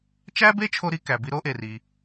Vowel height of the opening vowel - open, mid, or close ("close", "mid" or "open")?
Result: open